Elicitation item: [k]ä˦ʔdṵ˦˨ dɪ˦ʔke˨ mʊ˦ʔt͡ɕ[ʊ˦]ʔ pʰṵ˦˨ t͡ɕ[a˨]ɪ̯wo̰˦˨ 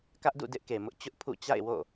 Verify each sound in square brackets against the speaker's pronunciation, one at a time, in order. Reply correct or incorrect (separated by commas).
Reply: correct, correct, incorrect